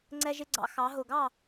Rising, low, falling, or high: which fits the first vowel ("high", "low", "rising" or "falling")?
high